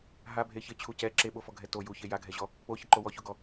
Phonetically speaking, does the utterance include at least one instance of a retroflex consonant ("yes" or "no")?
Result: no